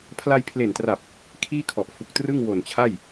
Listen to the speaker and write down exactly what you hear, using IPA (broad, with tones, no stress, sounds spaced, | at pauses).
pʰ l a˧ j pʰ l e˨˩ n t r a˨˩ p̚ | kʰ iː˥˩ kʰ ɔ˨˩ ʔ f u˨˩ k̚ t r ɯ˥˩ ŋ w o˨˩ n t͡ɕʰ a˥˩ j